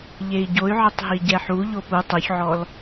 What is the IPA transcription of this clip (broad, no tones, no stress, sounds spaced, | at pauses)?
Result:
ʎ e i̯ ɟ o y̯ ʕ ɪ tˤ ɦ i ɟ ɛ ħ u ʎ o p u tˤ u ç ʕ ɔ l